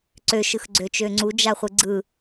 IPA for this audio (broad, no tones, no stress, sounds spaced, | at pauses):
ǀ ø ʃ ɯ x ɡ͡ǀ ø t͡ʃ ø ŋ͡ǀ u d͡ʒ a χʷ ɯ ɡ͡ǀ ɯ